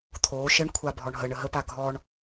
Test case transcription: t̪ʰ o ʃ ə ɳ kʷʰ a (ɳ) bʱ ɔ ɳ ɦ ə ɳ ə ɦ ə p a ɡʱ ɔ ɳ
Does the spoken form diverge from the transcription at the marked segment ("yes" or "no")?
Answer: yes